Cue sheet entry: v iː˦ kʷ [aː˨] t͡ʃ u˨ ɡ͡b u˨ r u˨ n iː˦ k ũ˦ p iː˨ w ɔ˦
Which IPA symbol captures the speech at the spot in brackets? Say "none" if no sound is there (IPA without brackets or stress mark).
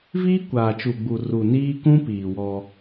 aː˨